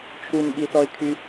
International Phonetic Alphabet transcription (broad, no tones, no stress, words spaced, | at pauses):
t͡ʃʰunɓiθɔɪ̯kʰy